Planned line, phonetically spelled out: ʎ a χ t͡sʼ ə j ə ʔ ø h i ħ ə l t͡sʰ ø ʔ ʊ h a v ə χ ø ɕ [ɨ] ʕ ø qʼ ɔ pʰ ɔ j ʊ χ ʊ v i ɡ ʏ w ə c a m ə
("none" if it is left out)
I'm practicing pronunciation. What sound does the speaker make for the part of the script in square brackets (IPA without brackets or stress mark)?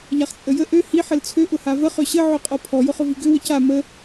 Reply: ə